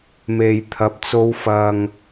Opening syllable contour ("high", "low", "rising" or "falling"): low